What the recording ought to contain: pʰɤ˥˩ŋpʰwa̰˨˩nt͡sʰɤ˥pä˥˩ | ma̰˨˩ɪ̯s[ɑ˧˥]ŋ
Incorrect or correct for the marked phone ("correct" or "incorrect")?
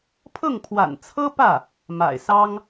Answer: incorrect